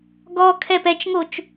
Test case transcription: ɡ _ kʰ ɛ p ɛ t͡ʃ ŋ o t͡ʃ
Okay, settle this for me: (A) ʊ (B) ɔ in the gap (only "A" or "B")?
B